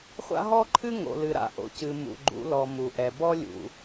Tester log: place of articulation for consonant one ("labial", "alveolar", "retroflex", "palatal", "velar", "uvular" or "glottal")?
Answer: uvular